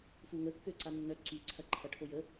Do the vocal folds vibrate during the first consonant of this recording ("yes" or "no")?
no